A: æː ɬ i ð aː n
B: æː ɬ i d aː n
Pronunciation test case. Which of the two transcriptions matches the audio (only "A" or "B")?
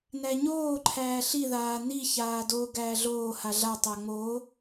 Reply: A